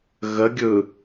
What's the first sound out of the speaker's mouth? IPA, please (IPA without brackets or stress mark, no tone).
ɣ